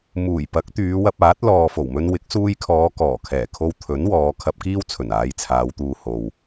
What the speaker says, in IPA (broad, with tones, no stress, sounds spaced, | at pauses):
m uː˨˩ j p ɐ˨˥ k̚ t̪ yː˨˧ w ɐ˧ p̚ aː˨˥ t̚ l ɔː˨ f o˨˩ w m ɵ˧ n w ɪ˨˥ k̚ s uː˧ j kʰ ɔː˨˧ k ɔː˨˩ kʰ ɛː˨˩ kʰ o˧ w t̪ʰ ɵ˨˥ n w ɔː˨˧ kʰ ɐ˧ p̚ k iː˥ w t͡sʰ ɵ˨˩ n aː˨˧ j t͡sʰ aː˨˧ w t̪ uː˨ h o˨ w